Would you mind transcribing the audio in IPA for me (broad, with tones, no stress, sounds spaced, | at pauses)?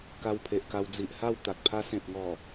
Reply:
k a˧ w pʰ e˨ ʔ k a˧ w d͡z i˨ ʔ h a˥˧ w t̪ a˨ k̚ pʰ a˦ s ẽ˨ p̚ ŋ ɔ˨˩